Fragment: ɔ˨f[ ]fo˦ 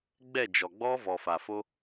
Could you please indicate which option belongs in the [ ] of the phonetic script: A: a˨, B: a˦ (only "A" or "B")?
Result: A